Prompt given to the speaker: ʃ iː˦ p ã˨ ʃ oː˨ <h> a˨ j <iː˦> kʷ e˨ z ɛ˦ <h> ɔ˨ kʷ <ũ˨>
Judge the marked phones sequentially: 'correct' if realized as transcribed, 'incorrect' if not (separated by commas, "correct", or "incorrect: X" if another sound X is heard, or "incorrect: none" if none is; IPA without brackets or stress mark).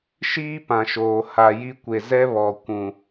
correct, incorrect: i˦, incorrect: β, correct